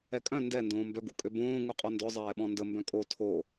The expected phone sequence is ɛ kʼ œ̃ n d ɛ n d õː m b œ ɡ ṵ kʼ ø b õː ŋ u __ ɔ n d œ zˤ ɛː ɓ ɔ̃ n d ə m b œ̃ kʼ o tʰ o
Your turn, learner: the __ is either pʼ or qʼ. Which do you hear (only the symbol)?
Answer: qʼ